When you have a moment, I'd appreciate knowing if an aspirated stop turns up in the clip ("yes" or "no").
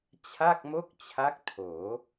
yes